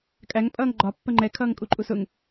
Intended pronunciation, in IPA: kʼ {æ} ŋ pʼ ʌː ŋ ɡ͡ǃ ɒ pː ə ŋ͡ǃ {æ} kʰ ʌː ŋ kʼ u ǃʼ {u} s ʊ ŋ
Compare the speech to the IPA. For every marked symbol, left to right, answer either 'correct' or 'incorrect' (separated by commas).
correct, incorrect, correct